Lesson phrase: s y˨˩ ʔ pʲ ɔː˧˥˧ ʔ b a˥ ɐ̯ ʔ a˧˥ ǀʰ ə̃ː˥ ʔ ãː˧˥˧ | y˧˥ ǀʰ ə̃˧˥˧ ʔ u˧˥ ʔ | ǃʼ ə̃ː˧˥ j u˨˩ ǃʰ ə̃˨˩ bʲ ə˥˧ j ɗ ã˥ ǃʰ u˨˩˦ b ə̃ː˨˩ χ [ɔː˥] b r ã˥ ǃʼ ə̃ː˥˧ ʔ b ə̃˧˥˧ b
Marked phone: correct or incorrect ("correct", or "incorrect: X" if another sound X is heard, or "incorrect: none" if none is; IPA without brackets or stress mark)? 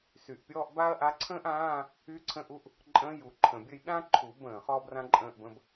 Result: correct